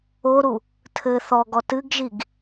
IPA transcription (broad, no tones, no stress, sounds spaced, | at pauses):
o ɾ u | tʰ ɘ θ ɔ ɡ ɔ t ɨ ɡ ʒ i ɡ